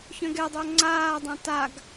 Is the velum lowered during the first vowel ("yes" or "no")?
yes